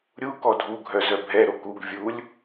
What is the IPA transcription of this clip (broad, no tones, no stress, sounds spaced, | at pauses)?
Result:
ɾʲ u k ɔ dʱ u ɡʱ œ z œ bʱ ɛ ɾ o k u ɡ vʲ u lʲ